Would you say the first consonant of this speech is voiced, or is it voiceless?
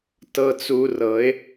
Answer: voiceless